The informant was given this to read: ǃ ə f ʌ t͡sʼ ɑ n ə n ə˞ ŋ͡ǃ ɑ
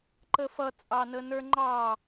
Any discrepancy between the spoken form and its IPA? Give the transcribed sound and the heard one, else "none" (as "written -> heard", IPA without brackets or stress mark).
none